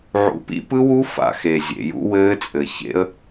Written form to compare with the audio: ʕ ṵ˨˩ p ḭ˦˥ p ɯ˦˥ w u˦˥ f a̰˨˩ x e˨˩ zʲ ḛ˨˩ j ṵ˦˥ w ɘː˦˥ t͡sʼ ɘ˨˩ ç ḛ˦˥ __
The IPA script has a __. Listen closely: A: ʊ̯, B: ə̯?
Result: B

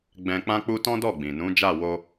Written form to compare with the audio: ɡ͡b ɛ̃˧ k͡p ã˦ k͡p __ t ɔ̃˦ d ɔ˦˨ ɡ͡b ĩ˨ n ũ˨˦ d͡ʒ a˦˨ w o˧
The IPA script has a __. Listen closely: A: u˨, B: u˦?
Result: B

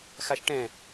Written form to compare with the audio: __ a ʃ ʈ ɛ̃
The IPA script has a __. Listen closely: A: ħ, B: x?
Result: B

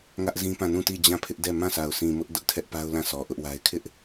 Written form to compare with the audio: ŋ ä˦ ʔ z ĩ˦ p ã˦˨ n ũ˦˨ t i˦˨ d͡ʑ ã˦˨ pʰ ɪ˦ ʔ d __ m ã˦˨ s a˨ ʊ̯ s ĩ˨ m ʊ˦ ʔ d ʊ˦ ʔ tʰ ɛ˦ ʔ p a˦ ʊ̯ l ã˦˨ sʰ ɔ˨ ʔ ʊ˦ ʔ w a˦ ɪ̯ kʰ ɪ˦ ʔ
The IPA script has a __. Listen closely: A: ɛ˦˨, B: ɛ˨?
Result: A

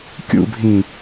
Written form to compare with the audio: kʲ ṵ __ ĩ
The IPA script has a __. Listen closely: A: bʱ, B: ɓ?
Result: A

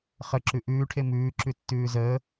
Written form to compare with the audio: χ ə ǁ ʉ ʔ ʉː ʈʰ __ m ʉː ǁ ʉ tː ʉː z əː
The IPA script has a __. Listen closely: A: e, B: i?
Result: A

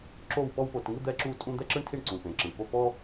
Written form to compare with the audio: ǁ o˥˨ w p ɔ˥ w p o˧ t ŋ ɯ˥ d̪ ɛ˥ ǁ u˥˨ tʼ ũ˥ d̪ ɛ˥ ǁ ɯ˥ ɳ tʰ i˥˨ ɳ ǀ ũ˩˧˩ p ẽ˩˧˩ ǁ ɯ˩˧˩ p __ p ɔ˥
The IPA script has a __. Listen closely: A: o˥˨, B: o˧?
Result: A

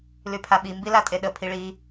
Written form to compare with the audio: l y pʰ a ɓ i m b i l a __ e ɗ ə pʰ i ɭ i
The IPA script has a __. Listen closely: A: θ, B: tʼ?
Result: B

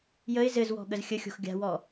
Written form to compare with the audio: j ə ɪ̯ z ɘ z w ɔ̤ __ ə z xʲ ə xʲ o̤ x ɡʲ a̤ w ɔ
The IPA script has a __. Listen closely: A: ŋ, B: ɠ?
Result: B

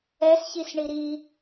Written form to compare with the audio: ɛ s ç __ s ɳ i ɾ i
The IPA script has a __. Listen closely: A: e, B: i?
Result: B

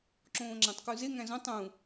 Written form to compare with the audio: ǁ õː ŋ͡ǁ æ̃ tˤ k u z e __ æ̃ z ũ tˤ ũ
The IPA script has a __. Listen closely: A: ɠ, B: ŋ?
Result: B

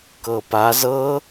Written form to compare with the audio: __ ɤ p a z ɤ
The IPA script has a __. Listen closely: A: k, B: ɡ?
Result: A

